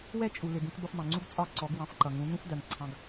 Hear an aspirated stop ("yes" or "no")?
yes